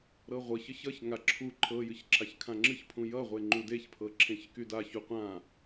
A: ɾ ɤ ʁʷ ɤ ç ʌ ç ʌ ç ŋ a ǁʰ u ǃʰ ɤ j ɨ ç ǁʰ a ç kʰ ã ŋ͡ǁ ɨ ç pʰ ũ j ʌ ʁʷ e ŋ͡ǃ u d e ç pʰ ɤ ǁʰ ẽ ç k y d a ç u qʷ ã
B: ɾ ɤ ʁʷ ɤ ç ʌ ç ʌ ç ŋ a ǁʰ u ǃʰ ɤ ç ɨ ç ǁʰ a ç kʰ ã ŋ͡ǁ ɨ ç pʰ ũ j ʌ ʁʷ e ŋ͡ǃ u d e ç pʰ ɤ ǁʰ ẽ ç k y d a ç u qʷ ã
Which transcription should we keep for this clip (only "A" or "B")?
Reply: A